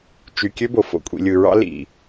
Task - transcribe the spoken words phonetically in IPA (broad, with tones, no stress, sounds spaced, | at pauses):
t͡ʃ y˨ kʲ ø˦ b o˨ f o̰˨ kʷʼ ḭ˨ lʲ ɯ˨ ɹ ɑ̰˦ l ḭ˨